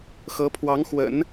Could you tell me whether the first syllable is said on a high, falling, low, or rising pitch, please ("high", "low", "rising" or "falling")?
rising